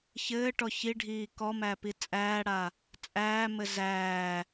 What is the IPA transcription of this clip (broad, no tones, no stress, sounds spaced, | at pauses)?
ç ɘː ʈ ɔ ç i ɖʱ iː k ɔ m æ p i t͡sʼ æː ɽ a | t͡sʼ æː m ɘ z æː